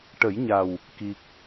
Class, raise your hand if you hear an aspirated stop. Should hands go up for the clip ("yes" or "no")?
no